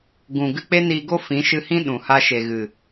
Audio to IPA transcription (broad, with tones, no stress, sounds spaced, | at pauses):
ɡ ũ˨ ɡ ɨ˧ k͡p e˦ n iː˧ ɡ o˦ f ĩ˨˦ ʃ ɨ˧ h ĩ˦ ɗ ũ˨ h a˧ ʃ e˨ ɣ ɨ˨